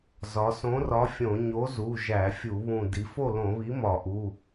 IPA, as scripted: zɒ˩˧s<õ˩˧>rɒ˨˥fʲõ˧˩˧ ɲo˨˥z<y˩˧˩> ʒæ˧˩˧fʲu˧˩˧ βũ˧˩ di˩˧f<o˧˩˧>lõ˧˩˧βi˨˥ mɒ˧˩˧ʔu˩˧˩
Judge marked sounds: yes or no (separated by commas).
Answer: no, no, no